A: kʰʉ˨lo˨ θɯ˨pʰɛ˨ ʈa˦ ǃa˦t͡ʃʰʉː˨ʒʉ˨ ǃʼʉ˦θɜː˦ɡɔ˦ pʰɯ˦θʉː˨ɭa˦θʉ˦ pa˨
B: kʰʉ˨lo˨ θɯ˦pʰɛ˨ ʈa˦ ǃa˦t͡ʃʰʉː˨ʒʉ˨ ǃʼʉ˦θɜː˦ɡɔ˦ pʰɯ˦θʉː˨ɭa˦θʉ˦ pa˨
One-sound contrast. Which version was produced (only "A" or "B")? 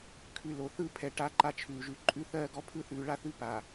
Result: B